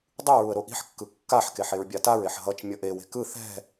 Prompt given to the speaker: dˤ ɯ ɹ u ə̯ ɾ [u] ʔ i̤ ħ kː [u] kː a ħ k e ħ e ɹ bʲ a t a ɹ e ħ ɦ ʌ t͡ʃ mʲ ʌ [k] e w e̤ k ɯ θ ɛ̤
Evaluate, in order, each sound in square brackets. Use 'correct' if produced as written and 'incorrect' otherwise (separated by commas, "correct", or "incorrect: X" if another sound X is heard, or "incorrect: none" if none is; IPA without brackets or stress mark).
incorrect: o, incorrect: ɯ, incorrect: ʔ